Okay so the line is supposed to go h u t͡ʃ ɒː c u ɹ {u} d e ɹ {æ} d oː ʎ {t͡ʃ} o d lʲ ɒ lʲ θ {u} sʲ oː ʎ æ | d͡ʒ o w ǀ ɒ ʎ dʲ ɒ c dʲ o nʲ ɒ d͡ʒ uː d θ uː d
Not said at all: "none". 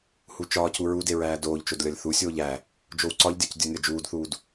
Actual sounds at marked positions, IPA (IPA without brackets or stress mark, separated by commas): u, æː, t͡ʃ, u